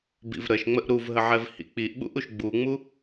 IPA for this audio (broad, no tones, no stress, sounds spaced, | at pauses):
b ḭ v ɾ ə ʃ ŋ͡m ə ʔ ɾ u v ɦ ə ʕ ɛ v h ḭ k͡p i ʔ ɓ ṵ ʔ u ʃ ɡ͡b u ŋ͡m u